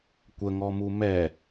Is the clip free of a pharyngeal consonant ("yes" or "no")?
yes